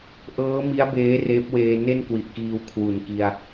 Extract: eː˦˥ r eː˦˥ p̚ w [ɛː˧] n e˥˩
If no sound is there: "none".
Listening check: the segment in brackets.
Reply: eː˧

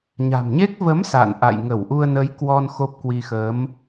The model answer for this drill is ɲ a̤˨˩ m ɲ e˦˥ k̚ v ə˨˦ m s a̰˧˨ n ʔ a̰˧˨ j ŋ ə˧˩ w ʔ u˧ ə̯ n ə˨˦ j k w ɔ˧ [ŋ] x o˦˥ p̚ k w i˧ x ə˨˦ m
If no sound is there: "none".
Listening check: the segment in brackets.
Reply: n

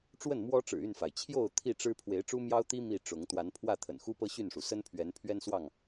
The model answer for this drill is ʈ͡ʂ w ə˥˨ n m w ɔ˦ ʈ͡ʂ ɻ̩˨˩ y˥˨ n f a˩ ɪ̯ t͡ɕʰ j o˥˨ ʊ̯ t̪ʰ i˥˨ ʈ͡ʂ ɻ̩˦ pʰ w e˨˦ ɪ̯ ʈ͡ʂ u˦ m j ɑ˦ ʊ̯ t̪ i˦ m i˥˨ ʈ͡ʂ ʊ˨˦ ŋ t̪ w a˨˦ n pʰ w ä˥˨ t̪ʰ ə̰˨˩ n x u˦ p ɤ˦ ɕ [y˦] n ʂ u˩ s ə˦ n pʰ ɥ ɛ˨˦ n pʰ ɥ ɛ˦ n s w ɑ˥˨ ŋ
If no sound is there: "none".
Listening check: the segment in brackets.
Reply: y˥˨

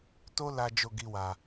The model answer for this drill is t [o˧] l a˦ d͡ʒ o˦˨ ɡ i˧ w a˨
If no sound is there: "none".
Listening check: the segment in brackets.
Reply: o˦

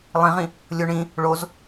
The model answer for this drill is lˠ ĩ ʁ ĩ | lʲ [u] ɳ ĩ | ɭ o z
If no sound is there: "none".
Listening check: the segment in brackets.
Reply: o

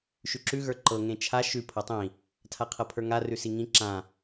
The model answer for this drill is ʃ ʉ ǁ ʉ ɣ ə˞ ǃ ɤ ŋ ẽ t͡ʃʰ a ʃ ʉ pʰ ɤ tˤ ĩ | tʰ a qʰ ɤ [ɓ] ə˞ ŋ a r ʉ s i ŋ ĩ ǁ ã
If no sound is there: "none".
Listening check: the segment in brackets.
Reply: pʰ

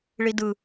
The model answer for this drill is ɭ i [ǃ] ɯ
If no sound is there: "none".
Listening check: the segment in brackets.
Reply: d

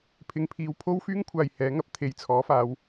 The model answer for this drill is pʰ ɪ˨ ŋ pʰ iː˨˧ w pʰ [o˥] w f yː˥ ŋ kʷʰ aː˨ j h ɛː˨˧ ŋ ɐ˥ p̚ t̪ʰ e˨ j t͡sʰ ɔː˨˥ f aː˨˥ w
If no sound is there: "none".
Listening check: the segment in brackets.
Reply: o˥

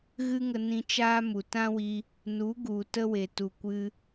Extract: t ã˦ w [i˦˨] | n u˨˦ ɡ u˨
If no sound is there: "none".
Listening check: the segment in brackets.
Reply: i˧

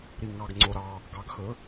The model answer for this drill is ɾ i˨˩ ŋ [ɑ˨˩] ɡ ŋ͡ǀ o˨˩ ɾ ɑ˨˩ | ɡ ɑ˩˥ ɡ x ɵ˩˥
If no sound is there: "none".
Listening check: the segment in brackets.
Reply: ɑ˨˩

